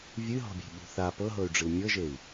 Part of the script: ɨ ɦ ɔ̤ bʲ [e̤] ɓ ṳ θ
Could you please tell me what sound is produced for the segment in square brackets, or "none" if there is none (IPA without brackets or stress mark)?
e̤